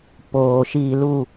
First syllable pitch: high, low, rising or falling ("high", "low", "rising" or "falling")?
low